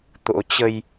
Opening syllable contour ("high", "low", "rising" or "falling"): rising